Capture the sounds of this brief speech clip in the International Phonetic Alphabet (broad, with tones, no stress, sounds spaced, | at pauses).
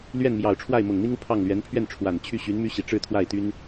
l ɥ ɛ˥˩ n m j ɑ˨˩ ʊ̯ ʈ͡ʂʰ w a˥˩ ɪ̯ m ʊ˨˩ ŋ n̪ i˥ ŋ u˨ pʰ ɑ˥˩ ŋ l ɥ ɛ˧˥ n pʰ ɥ ɛ˥˩ n ʈ͡ʂʰ w a˨˩ n t͡ɕʰ y˥˩ ɕ y˧˥ n m y˥ ɕ i˨˩ ʈ͡ʂ ɻ̩˥˧ t̪ʰ w a˥˩ ɪ̯ t̪ y˥ n